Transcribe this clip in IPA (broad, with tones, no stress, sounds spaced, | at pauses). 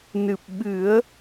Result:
n ɨ˨˩ p̚ ɓ ɨ˨˩˦ ə̯